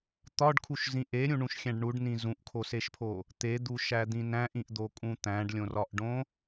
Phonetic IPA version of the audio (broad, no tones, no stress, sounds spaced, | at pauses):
t̪ ɒ ɖ kʰ u ʃ z ĩ ʔ e ɾʲ ũ ɳ ũ ʃ xʲ æ̃ ɖ ɳ u ɖ n ĩ z ũ ʔ kʰ o s e ʃ pʰ o | t̪ e d̪ u ʃ æ d̪ ĩ n æ̃ ʔ ĩ ʔ d̪ o kʼ ũ t̪ æ̃ ɖ lʲ õ r ɒ ʔ ɖ õ